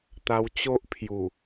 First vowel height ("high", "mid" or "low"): low